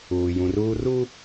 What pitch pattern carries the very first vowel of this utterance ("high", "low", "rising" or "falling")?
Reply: low